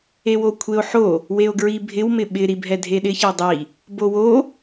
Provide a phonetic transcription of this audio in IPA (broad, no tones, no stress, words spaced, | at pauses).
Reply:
ewokʷʰeo̯ħo | weo̯ɡɹibʱɪw mɪɓɪ ɾibʱɛdʱeɗɪ çɛdˤi | bowo